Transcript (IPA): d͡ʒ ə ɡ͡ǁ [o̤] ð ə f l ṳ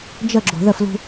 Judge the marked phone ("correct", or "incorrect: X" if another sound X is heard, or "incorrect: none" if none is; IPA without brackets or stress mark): correct